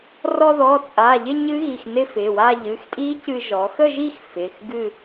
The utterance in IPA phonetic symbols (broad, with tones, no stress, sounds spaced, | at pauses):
r ɔ˧ ð ɔ˩˧˩ t͡sʼ a˩˧˩ ʎ ɪ˥˧ ɲ ɨ˦˥ ɣ i˩˧˩ x n ɪ˥˧ f ɪ˩˧˩ w a˥˧ ʎ ɨ˩˧˩ x tʼ i˦˥ c ɨ˧ ʒ ɔ˩˧ x ə˥˧ ʒ i˥˧ x f ɪ˩˧˩ x ɡ ɨ˥˧